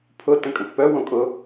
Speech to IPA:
pʰ ʊ t ə̃ kʼ ə̃ t p œ w õ kʼ ʊ

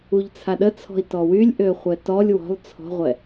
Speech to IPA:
u ʎ t͡sʰ a ɗ ə t͡sʰ ɔ̤ i̯ t ɔ w y lʲ ʔ ø χʷ ɛ t ɔ lʲ w ɔ̤ lˠ t͡sʰ ɔ̤ ʁʷ ɛ

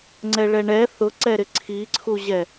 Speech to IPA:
ŋ͡ǀ ɛ ɭ ɛ ɳ ɛ θ ʊ ǀ ɛ ɾ ɪ ǀʰ i ǀʰ u ʑ ɛ

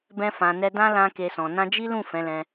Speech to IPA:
b ɛ̃˧ f ã˨ n ɛ˧ d ã˦ l ã˦ k e˧ s ɔ̃˨ n ã˧ d͡ʒ i˦ l ũ˦˨ f ɛ̃˨˦ l ɛ̃˧

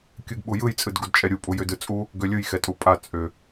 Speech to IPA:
kʲ ɯ ɡ ɓ u j ɯ j t͡sʼ ɯ d ɡ u d t͡ʃʼ ɛ ɾʲ u pʼ u j ʏ d ɯ t͡sʼ u | ɡ ø lʲ ɯ j x ɛ tʼ u pʼ a t͡sʼ ʏ

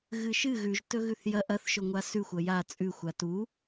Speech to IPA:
ɣ ɨ ʃ ɨ ɣ ʉ ʒ t ɵ ɣ ʉ θ j ɐ ʔ ɐ θ ʃ ɵ ŋʷ a s ʉ xʷ ɐ j a t͡sʼ ʉ xʷ a t u

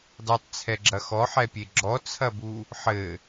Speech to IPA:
dˤ ɨ tˤ t͡sʰ ɛ ɡ͡ǁ ɐ x ɔ ħ ɛ pʲ e ɡ͡ǁ ɔ t͡sʰ ɐ b u | ħ ɘ

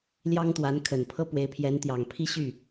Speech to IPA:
l j ɑ˥ ŋ t̪ w a˧˥ n kʰ ə˨˩ n pʰ ɤ˥ p w e˧˥ ɪ̯ pʰ j ɛ˧˥ n t̪ j ɑ˨˩ ŋ pʰ i˥˧ ɕ y˥˩

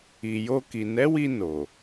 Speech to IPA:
i˨ j o˧ k i˨ n ɛ˨˦ w i˧ n o˨

